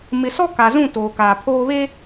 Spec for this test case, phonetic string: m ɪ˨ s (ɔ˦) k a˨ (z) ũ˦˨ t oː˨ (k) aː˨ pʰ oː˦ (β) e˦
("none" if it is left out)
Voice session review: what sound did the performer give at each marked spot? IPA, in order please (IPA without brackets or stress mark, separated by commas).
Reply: ɔ˦, z, k, β